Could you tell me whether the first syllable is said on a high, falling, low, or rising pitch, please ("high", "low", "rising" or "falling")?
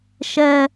high